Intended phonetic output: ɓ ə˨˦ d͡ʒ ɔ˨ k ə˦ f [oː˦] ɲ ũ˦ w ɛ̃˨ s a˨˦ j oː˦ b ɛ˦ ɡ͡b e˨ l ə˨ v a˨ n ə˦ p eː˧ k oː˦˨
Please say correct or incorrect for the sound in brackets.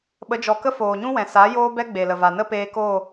incorrect